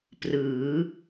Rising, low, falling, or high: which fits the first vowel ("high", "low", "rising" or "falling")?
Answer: rising